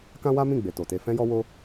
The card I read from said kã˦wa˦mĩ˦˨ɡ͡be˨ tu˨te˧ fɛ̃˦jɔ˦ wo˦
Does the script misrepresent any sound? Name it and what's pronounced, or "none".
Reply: u˨ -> o˨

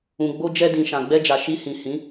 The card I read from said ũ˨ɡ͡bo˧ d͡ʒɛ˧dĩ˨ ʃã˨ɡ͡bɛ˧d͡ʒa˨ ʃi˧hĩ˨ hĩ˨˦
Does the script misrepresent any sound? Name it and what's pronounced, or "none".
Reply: none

